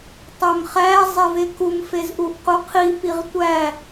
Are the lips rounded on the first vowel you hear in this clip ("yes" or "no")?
yes